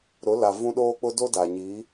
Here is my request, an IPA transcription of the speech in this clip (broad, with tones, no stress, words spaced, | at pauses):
ɾʊ˨˦la˨ vũ˦ ɗoː˦k͡pʊ˦do˦ daː˨ ɲiː˨˦